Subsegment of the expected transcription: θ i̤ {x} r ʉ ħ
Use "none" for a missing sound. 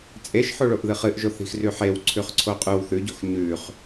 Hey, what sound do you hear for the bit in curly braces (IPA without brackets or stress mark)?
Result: x